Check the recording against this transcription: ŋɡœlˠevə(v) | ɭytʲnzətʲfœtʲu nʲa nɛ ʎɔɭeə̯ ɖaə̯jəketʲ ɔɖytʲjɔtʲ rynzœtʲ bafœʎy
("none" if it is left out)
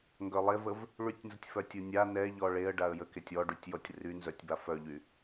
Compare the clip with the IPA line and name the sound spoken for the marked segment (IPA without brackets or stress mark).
v